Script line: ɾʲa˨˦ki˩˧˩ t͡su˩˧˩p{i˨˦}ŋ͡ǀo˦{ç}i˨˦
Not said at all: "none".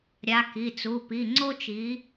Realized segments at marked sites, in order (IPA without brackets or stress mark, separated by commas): i˩˧˩, t͡ʃ